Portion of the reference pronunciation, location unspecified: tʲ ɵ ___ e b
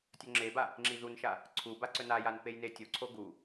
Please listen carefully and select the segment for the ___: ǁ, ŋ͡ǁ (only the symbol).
ŋ͡ǁ